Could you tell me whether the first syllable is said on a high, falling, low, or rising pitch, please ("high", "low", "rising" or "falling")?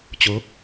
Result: rising